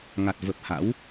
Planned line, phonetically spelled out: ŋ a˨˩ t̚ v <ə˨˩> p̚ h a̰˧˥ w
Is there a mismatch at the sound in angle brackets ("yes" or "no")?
no